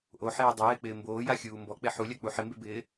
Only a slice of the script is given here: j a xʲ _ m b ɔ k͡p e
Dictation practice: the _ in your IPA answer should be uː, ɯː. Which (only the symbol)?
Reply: uː